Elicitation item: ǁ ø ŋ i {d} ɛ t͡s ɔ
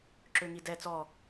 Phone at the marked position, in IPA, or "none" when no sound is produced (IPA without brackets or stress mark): d